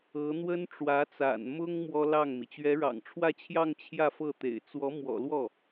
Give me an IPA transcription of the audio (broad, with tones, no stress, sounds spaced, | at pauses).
ɤ˧˥ n̪ w ə˥ n ʈ͡ʂ w ä˧˥ t͡s a̰˨˩ n m ʊ˥ ŋ m w ɔ˥ l ɑ˥˩ ŋ m i˩ t͡ɕ ɥ ɛ˧˥ ɻ ɑ̰˨˩ ŋ ʈ͡ʂʰ w ä˥˧ t͡ɕʰ j ɑ˥˧ ŋ t͡ɕʰ j ä˥˧ f ɤ˥˩ t̪ ḛ˨˩ ɪ̯ t͡s w ɔ˧˥ m w ɔ̰˨˩ l w ɔ˥˩